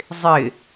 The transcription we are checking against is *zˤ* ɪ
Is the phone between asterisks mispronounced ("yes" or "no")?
no